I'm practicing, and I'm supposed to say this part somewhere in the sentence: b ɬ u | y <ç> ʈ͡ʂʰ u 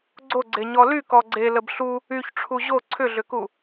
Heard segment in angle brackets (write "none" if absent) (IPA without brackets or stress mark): ç